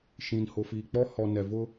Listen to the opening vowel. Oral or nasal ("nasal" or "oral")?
nasal